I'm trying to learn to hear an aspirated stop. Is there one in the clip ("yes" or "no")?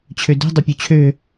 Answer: yes